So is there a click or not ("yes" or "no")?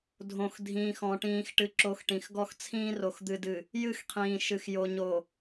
yes